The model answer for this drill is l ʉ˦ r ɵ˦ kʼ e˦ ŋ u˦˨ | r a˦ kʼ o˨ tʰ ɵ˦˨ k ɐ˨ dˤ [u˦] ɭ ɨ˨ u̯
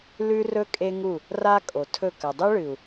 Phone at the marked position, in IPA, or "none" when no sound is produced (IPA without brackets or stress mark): u˦